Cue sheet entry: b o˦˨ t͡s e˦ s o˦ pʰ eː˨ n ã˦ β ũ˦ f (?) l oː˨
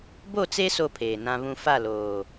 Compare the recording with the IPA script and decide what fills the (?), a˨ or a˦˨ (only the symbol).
a˦˨